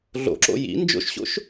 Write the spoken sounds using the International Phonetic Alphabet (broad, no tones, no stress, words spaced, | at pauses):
ɮo̰ǁo̰ jḭ nd͡ʒo̰ʃɕo̰ʃ